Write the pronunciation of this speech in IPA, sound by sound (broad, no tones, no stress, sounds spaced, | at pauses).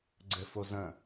ɡ͡ǀ ɘ f o z ə̃